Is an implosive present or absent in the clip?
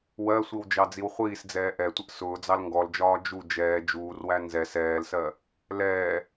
absent